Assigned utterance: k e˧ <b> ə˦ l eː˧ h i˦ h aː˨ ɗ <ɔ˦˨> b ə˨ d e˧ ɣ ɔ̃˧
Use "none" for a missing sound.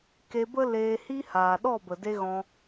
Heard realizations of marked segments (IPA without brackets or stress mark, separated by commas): b, ɔ˦˨